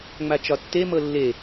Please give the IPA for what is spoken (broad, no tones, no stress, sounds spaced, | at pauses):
ŋ͡m a t͡ʃ ɒ tː e m ɤ lː e